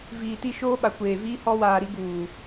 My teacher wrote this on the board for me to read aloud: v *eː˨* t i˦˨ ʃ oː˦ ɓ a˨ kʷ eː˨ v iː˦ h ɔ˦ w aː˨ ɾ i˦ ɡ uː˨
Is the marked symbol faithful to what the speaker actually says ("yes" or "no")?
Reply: no